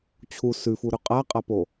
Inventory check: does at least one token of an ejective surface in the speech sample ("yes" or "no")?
yes